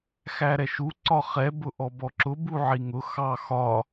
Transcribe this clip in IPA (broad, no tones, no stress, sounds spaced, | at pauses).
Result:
x æ ɾ ɛ ʃ u ǀ ɒ χ ɛ b ʊ ʔ ɔ b ɔ ǁ ʊ b u ʕ i ŋ ʊ x ɑ x ɒ